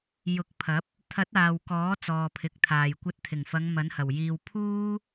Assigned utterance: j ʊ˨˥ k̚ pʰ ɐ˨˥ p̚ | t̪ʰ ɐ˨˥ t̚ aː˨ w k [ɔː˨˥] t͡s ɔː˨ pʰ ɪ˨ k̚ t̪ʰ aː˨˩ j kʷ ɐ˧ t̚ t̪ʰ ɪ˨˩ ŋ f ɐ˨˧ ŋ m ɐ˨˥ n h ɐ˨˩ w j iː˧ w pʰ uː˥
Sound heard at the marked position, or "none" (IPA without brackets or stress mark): ɔː˨˥